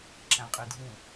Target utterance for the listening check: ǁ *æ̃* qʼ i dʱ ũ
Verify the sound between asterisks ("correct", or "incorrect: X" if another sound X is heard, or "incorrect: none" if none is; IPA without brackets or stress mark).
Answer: correct